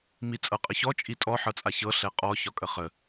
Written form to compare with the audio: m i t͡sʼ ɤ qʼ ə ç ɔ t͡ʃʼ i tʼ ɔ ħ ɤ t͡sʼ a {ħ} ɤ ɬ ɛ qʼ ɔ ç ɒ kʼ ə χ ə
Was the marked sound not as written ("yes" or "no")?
yes